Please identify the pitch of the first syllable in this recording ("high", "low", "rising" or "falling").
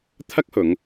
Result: high